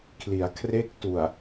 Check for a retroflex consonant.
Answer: absent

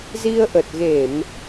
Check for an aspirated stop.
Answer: absent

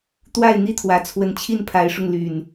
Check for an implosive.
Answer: absent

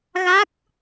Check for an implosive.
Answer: absent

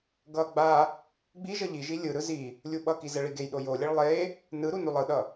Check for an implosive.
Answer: present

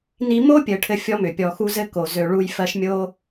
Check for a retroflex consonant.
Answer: present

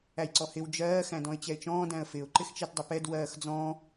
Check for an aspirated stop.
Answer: absent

